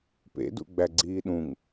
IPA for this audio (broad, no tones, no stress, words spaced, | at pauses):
pḛdṵ ɡ͡bæɡ͡ǀiːɗũŋ